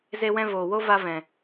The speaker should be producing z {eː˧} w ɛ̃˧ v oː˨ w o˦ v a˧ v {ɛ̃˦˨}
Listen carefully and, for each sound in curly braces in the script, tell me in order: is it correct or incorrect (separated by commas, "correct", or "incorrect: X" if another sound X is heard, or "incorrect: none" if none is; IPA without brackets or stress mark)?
incorrect: e˧, incorrect: ɛ̃˨